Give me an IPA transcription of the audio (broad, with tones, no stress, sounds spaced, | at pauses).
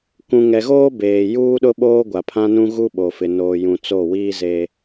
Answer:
k ũ˨ ŋ ɛ˨ ɣ oː˦ b eː˨ j uː˦ ɗ ʊ˦ ɓ oː˦ ɡʷ a˨ pʰ ã˦ n ũ˦ ɣ u˦ ɓ o˨ f ɪ˨ n oː˨ j ũ˨ t͡s o˦˨ w iː˦ z eː˦